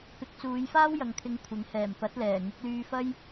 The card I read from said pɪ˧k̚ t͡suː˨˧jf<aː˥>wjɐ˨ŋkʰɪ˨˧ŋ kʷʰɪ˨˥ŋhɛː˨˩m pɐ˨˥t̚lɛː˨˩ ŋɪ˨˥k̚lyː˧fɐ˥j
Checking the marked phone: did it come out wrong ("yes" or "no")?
no